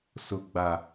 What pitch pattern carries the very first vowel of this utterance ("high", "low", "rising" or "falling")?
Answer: high